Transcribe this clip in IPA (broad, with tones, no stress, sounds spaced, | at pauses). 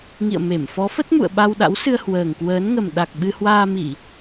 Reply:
ŋ ḭ˧˨ ə̯ m e˧˩ m f ɔ˨˦ f ə˦˥ t̚ m ṵ˧˨ ə̯ ɓ a˧ w ɗ a̰˧˥ w s ɨ˧ ə̯ h w əː˨˩ ŋ k w əː˨˦ n ŋ ə˨˩ m ɗ a˨˩ k̚ ɓ ɨ˧ h w aː˧ m i˧˩˨